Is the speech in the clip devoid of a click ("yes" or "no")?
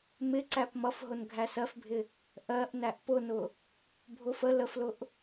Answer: no